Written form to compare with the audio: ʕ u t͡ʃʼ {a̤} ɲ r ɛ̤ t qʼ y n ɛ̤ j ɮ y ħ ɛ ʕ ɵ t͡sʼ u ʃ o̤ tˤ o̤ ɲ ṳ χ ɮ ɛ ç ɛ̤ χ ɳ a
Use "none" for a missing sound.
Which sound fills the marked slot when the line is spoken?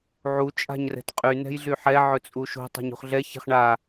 a̤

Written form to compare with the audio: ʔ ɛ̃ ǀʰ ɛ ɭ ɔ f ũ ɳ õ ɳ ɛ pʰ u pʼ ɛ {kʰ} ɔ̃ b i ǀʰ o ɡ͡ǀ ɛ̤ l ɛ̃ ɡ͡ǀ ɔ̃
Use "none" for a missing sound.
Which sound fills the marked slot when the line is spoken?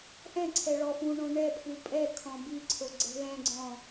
kʰ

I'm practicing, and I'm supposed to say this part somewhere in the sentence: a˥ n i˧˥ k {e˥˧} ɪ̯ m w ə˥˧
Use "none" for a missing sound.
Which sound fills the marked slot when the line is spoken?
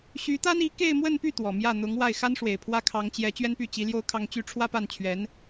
e˥˧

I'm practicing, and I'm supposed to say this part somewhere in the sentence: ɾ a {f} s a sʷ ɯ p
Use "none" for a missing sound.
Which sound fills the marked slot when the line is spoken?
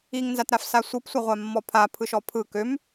f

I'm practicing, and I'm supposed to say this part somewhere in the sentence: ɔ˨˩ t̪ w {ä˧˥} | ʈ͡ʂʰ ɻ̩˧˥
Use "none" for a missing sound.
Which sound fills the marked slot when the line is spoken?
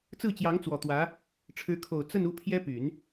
ä˧˥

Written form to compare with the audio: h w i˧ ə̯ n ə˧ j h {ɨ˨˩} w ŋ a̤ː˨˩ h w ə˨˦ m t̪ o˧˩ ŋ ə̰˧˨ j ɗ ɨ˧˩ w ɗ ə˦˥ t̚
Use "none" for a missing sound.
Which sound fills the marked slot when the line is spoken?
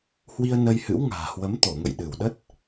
ɨ̰˧˥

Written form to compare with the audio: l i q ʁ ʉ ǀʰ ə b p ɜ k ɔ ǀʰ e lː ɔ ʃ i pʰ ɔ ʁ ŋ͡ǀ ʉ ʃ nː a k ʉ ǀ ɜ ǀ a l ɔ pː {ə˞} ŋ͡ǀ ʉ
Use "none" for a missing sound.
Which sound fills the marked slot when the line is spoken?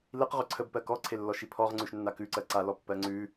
ɜ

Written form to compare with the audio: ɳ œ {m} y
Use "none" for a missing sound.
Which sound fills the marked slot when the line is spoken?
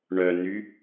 n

